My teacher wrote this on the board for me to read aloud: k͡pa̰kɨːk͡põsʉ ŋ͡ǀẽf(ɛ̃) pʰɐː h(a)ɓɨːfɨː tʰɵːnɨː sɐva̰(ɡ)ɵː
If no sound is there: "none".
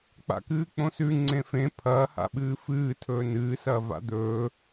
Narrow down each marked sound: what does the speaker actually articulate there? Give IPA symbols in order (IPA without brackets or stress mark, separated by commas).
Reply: ẽ, a̰, d̪